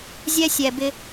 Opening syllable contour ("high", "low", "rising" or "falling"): high